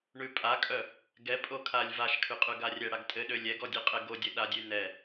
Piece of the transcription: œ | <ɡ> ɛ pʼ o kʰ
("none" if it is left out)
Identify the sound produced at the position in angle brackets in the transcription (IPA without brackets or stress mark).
ɡ